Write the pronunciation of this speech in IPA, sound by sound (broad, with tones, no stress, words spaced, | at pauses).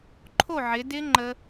ǃʰo˥˨ʕɪ˨˦ dɪ˦˥ ŋ͡ǃə˦˥